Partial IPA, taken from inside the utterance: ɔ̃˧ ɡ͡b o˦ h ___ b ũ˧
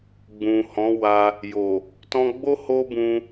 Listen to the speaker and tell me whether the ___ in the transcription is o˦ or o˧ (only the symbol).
o˦